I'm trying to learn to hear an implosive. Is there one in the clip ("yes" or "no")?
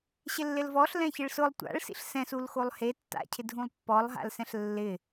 no